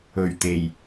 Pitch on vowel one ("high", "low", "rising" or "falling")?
low